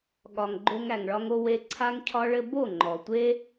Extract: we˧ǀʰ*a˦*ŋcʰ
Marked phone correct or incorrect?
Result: correct